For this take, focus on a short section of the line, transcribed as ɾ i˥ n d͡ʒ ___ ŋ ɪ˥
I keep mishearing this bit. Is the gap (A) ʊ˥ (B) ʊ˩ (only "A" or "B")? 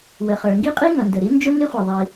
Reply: A